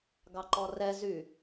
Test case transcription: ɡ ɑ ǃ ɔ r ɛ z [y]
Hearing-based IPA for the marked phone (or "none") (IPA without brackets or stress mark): y